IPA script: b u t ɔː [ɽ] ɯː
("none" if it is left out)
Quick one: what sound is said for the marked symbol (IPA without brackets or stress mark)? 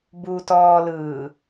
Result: l